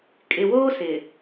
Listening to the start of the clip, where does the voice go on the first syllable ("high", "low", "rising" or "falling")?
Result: low